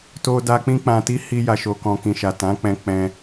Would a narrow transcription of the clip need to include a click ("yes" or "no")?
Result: no